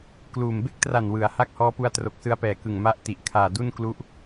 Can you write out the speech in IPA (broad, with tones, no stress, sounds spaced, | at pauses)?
k l uː˨˩ m b e˥˩ k̚ t r a˨˩ n w ɯ˩˦ a̯ h a˥˩ k̚ h ɔː˦˥ p u˦˥ a̯ t r o˨˩ k̚ s ɯ˧ a̯ p ɛː˨˩ k ɯ˨˩ ŋ m a˦˥ ʔ t i˨˩ ʔ kʰ aː˨˩ d u˥˩ n k l u˦˥ ʔ